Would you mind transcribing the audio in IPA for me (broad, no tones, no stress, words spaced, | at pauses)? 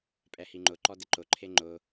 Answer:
pʼɛhiŋ͡ǃʊǃɔ dɪǃʊǃʰe ŋ͡ǃʊ